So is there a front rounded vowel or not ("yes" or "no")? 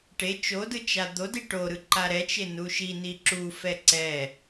no